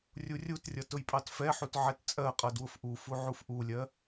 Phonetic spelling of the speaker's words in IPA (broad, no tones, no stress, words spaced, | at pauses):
rʲurʲutrʲʌ tʊjpʼɑtfɛħut ʕɛtt͡sʼɜqʼʌ dwʊfʔufu ʕufʔulʲɜ